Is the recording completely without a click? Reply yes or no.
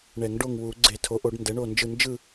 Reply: no